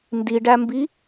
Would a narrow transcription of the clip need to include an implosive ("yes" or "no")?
no